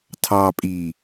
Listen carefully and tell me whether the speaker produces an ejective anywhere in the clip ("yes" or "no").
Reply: yes